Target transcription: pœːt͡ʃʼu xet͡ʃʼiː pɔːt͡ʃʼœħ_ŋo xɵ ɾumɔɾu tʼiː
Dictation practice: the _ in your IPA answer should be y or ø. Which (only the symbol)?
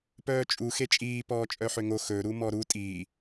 ø